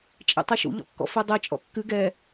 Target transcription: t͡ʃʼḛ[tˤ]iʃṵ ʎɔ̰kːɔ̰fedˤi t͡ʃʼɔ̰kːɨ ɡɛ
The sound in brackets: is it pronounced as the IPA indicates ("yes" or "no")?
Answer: yes